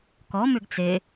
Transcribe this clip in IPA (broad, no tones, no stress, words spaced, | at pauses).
kɔ mʏɡt͡se